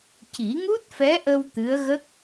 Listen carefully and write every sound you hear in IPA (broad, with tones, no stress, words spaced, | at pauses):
ci˨˩˦ŋu˦˥t̚fɛ˧˥ʔə˧w t̪ɨ˧˥ə̯ɣə˦˥k̚